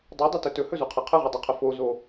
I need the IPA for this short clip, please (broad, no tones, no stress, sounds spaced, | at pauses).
dˤ ɵ dˤ ɵ t ɵ t ɵ h ɵ z u qʰ ɛ qʰ ə ʁ ɵ dˤ u qʰ ə f o z o